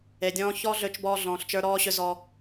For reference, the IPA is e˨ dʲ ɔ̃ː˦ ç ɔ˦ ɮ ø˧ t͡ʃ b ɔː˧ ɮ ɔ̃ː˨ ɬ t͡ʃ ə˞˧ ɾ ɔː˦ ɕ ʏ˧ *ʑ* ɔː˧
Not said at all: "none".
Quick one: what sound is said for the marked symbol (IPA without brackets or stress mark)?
z